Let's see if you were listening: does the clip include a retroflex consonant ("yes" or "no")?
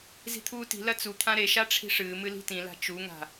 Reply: yes